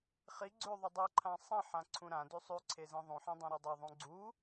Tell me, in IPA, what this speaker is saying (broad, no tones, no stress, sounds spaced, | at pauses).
χ i ɡ͡ǀ ʉ ðˤ ɵ dˤ e ǃʰ ã sˤ ĩ ħ ã ǀʰ ũ ɾ ã d ʉ sˤ ʉ ǀʰ e z ĩ ðˤ ũ ħ ĩ dˤ ũ ɾ i dˤ e ðˤ ũ ɡ͡ǀ u